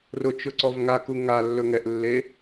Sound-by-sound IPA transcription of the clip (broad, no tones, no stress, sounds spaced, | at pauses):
r ʊ t͡ʃ ʊ ǀ ɔ v ŋ a k u ŋ a lː ɵ ŋ ɛ ʔ lː e